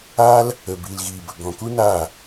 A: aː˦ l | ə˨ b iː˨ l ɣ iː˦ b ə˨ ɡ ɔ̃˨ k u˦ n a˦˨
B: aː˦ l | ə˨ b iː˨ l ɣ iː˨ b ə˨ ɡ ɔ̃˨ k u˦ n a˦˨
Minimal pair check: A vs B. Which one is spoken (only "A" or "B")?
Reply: B